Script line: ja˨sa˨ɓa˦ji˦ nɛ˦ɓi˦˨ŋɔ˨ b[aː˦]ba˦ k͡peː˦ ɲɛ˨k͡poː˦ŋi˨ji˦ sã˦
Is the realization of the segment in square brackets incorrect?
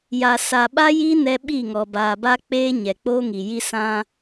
yes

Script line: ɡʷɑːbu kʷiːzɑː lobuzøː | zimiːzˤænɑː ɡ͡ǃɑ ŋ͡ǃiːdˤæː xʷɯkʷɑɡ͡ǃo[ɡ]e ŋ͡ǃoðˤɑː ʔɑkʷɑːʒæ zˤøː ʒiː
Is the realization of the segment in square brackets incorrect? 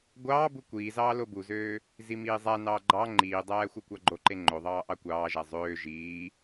yes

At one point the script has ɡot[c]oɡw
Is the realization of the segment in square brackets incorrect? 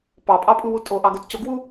no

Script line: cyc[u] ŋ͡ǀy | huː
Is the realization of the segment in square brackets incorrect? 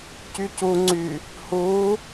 no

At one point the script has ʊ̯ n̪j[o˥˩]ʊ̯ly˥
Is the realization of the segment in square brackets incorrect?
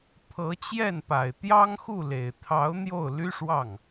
no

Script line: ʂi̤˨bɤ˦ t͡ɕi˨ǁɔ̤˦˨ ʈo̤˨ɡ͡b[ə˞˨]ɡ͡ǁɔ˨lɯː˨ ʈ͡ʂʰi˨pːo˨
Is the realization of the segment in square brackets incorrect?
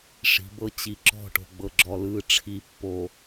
yes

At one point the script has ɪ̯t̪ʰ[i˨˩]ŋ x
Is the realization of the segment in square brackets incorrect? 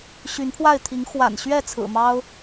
yes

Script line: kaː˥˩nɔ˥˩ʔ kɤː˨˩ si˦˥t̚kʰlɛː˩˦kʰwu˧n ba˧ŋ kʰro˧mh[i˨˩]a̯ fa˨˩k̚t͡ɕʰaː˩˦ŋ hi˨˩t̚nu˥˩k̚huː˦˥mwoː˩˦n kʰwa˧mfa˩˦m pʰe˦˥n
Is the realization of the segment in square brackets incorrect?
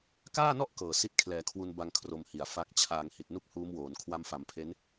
no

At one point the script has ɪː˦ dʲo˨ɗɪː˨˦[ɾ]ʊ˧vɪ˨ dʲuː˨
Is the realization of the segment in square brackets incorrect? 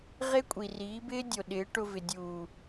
yes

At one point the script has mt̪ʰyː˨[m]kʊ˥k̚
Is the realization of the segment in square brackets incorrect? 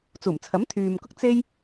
no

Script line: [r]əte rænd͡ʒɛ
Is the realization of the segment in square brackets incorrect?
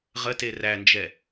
yes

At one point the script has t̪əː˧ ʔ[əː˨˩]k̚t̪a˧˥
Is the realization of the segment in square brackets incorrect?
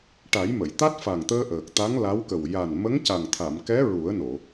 no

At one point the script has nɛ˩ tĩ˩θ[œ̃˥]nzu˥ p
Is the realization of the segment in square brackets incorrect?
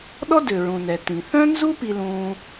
no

